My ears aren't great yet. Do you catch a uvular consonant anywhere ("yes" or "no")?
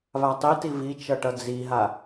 no